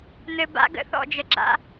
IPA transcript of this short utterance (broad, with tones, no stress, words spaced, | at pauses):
n̪ɘ˨ba̰˦ ɡə̰˦θɔ̰˦˨d͡ʒə˨ɡ͡ǁa̰˦